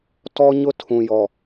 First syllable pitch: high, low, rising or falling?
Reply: high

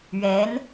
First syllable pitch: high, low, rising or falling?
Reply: rising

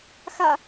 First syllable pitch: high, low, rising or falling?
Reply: low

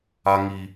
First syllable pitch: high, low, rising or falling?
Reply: high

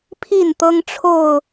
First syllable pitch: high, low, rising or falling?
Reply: falling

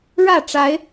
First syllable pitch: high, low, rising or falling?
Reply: falling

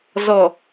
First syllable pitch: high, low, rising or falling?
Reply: low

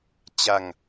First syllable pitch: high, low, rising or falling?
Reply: falling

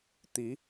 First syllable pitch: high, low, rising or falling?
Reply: rising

